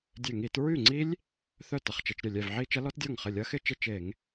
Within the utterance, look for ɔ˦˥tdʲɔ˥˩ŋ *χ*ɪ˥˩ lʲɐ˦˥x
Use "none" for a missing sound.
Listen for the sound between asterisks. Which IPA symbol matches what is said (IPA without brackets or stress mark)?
χ